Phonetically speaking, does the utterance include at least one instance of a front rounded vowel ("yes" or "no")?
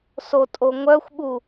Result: yes